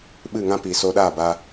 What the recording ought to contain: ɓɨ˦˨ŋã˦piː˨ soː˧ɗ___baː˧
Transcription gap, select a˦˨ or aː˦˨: aː˦˨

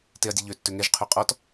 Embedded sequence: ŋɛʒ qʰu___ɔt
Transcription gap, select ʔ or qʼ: qʼ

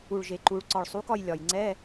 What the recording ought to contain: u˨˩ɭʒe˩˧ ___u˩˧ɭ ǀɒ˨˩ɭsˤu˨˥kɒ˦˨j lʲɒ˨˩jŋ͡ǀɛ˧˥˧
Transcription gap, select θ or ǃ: ǃ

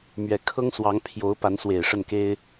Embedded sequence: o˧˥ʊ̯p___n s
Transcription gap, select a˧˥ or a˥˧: a˧˥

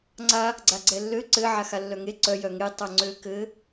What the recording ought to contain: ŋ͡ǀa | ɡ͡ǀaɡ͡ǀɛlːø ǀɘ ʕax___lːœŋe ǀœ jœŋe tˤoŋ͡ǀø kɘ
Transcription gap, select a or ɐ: a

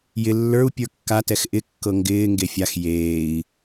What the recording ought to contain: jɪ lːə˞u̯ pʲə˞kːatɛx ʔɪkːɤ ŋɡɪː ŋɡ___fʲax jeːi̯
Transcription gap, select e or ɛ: e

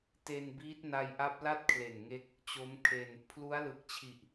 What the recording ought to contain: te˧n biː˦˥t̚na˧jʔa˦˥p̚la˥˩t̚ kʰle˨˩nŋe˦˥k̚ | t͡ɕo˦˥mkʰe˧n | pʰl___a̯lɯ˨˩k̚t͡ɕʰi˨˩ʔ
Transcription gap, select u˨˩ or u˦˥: u˦˥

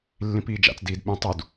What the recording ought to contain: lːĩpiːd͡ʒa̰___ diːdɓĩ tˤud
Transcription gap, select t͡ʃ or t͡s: t͡s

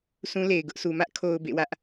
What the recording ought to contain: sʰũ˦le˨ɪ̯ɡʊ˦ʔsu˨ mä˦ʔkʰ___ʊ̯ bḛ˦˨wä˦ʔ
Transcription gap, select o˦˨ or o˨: o˨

